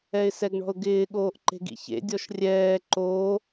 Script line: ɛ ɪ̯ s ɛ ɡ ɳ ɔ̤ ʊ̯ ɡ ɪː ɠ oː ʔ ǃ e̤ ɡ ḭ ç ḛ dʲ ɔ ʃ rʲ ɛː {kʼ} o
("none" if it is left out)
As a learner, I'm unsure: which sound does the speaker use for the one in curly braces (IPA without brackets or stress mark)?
ǃ